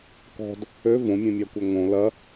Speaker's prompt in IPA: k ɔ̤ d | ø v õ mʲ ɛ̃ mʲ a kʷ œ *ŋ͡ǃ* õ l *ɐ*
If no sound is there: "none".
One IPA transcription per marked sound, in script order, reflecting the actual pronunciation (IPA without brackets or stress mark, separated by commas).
ŋ, ɐ